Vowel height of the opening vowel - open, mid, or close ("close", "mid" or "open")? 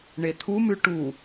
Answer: mid